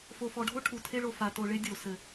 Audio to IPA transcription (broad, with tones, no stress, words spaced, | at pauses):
fo˨fɔ˨ɖʱo˦ ʈʰu˨tʰe˦ɭo˨ fa˨to˨ɭe˦ dʲo˨ sɘ˨